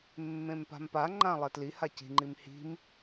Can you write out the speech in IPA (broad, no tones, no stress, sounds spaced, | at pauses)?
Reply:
mː ẽ m p a̤ m p a ŋ͡ǃ ã lˠ ɛ t l i h a c i̤ ŋ͡ǃ i m h i̤ m